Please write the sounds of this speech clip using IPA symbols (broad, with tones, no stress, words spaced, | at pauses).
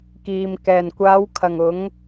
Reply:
kiː˨m kɛː˨˩nkʷaː˨˧w kʰɐ˨˩ŋ ʊ˨˧ŋ